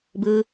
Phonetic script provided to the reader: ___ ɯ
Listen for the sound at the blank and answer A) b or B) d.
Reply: A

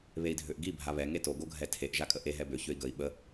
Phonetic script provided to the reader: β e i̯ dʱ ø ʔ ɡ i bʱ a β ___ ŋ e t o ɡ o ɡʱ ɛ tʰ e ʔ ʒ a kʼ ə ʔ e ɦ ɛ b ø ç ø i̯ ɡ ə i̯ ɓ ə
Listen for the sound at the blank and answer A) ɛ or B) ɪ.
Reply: A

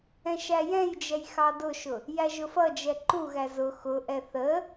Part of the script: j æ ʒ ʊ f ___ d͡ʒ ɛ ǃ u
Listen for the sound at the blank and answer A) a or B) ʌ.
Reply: B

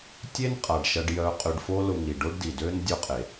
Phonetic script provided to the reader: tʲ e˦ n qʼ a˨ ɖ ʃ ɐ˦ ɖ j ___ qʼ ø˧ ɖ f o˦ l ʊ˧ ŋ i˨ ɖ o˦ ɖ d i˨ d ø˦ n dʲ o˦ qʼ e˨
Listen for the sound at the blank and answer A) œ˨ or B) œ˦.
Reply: B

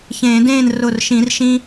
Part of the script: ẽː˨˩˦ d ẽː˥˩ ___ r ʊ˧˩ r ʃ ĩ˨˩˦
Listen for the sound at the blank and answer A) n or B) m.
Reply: A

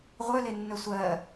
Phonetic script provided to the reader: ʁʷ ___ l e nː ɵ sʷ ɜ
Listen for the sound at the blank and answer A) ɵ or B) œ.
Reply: B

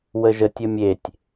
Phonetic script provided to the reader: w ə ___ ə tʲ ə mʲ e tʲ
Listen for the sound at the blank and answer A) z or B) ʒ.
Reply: B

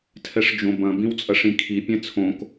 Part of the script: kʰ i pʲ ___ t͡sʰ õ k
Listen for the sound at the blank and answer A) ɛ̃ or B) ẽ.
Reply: A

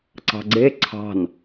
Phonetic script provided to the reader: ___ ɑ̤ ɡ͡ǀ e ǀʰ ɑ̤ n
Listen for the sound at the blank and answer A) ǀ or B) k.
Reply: A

